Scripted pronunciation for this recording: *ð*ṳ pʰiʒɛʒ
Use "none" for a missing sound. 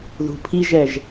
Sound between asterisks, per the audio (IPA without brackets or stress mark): ð